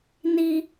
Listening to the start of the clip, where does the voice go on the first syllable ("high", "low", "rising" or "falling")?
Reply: high